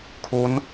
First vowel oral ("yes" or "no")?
yes